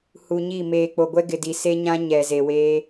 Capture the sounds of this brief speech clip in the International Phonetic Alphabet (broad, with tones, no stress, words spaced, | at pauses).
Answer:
hu˨ɲi˦˨ meː˨k͡po˨ɡʷɛ˦ɡɪ˨ di˨se˦ɲã˦ ɲɛ˨ze˨weː˦